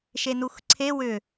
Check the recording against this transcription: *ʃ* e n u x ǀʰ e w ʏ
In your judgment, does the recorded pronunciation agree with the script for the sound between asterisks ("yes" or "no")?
yes